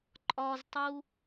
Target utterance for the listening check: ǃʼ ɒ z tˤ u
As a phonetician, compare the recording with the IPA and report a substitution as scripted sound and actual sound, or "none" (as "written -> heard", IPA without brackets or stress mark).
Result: none